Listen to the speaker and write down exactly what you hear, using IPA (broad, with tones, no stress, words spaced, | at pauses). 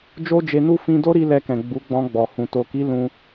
d͡ʒo˦d͡ʒe˧nu˦ fĩ˧do˦ɾi˧ lɛ˧kɛ̃˨ ɡ͡bu˨˦ɡ͡bɔ̃˧ɡ͡bɔ˨ hũ˨ to˨ki˨˦ lũ˧